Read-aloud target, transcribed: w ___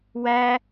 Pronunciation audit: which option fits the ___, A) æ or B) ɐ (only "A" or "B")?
A